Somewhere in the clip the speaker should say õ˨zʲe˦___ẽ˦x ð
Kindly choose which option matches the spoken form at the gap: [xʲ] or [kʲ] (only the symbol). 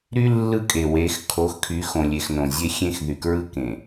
xʲ